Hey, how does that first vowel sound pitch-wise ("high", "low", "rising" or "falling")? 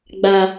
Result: low